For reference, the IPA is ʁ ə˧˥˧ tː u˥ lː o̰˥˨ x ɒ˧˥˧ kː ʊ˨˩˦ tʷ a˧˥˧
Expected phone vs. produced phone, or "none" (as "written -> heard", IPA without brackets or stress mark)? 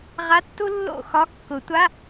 ə˧˥˧ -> a˧˥˧